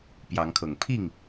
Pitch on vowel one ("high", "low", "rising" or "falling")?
rising